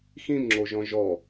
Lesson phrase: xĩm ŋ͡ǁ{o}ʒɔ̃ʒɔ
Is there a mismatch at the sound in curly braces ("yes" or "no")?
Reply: no